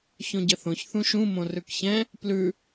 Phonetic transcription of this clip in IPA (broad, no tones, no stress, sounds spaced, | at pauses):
ç õ ɟ ə θ õ ç θ ũ ʃ ũ m õ r ʉ k ç ɛ̃ | p l ʉ